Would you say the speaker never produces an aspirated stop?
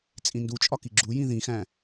yes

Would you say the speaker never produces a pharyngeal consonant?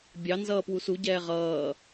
yes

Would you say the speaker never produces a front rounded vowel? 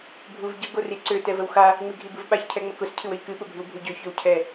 no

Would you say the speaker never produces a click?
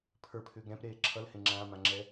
no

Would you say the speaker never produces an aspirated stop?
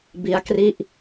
yes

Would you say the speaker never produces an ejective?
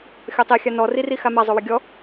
yes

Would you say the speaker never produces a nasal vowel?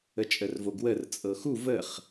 yes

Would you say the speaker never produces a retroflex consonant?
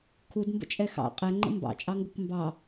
yes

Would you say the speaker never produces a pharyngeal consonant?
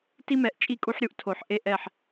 no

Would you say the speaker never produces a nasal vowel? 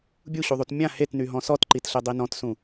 no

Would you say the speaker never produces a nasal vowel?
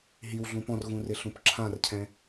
no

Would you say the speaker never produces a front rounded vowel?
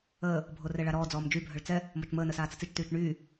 no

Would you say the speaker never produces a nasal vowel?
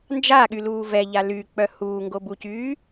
yes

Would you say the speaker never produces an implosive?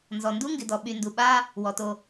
no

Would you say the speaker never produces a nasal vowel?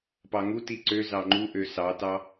yes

